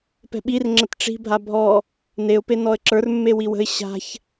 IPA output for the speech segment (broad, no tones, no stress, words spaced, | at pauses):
pɛ̤ɓir ŋ͡ǁətʈ͡ʂi̤ bʱabʱɔ | neʊ̯ penɔə̯ǁə˞r mːewiwə̤ɪ̯ ɕa̤ç